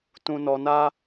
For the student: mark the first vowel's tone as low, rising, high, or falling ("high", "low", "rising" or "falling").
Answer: low